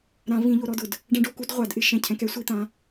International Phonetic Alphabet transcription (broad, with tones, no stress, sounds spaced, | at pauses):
ɾ ã˨˩˦ v ĩ˨˩˦ ʎ o˨˦ ɾ ɔ˧˥˧ d ʊ˧˩ d | ɖ ɛ̃˦˥ ɖ o˨˩˦ k u˦˥ d ʁʷ a˨˩˦ d ʔ ɪ˨˦ ʃ ɛ̃˧˩ cʰ ɛ̃˨˦ k ɛ˦˥ sʷ i˧˥˧ t̪ ã˨˦